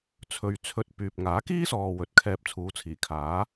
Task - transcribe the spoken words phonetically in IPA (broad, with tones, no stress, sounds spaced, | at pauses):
t͡sʰ ɵ˨ ɥ t͡sʰ ɵ˧ t̚ p yː˨ p̚ ŋ aː˨˥ k iː˥ s ɔː˨ w ɵ˨˥ t̚ kʰ ɛː˧ p̚ t͡sʰ uː˨˧ t͡sʰ iː˨˩ kʰ aː˨˥